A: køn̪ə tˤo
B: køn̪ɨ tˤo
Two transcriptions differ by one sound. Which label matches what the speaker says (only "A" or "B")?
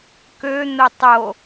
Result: A